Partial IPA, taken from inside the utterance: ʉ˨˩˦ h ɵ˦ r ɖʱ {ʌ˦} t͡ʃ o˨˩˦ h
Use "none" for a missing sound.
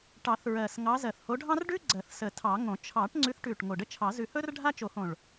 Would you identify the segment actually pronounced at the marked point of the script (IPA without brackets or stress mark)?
a˦